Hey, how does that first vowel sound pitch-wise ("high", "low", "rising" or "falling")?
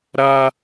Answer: high